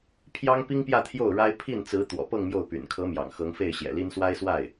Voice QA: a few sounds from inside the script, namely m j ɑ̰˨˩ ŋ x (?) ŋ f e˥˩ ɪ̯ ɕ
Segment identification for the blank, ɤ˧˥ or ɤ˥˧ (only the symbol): ɤ˧˥